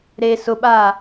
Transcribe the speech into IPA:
ɾe sʊɓaː

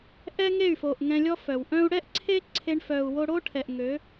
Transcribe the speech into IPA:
ʔɛ˦ŋe˦˨y̯fo˨ʔ ŋɛ̃˧lʲɔ˦fœ˨w ʔœ̃˧u̯ɽɛ˦ʔ ǀʰe˦ ǀʰe˧ɳfœ˨u̯ wo˧ɽo˦ʈʰɛ˨ʔ ŋø˨˦

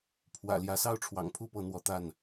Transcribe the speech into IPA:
pʰwä̰˨˩ljä˨˦ sɑ˥˨ʊ̯ʈ͡ʂʰwɑ̰˨˩ŋpʰu˥˨pɤ˨˦ n̪wɔ˨˦t̪a˥˨n

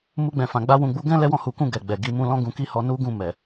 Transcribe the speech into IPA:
mu˧ɡ͡bɛ̃˨fã˨ ɡ͡ba˧wũ˨ɡ͡bu˨˦ɡɛ̃˦ lɛ˦wɔ̃˦˨hu˨˦kũ˦˨ ɡɛ˨ɡ͡bɛ˨ɡi˧mũ˦ lɔ̃˦ɡũ˧ki˦ hɔ˧nu˦ɡũ˦˨ mɛ˨

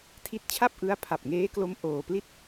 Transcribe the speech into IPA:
tʰi˦˥t̚t͡ɕʰa˥˩p̚ʔɯ˦˥a̯ pʰa˨˩p̚ŋeː˦˥klo˦˥m ʔoː˧pli˥˩t̚

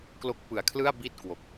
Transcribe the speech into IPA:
klo˦˥k̚pɯ˨˩a̯kʰlɯ˥˩a̯ bi˥˩t̚kwo˨˩k̚

